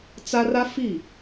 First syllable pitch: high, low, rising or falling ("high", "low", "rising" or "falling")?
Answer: high